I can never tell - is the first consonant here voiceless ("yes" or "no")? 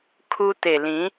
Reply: yes